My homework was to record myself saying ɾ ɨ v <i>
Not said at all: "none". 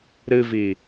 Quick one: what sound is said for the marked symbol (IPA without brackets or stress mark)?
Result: i